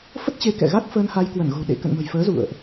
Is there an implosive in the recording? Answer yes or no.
yes